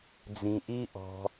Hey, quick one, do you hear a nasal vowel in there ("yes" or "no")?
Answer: yes